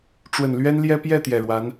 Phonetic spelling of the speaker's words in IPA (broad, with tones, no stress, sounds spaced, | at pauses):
ʈ͡ʂ w ə˨˩ n l ɥ ɛ˥ n l j ɛ˥ p j ɛ˥˩ t̪ j ɛ˨˩ ɻ w a˧˥ n